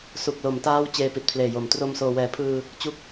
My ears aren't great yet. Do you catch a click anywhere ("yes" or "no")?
no